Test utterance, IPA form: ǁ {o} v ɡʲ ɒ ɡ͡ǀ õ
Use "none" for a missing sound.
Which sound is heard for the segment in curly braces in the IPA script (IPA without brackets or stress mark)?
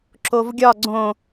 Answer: o